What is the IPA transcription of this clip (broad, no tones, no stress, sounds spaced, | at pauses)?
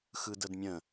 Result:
x ɯ d ə d mʲ ə̃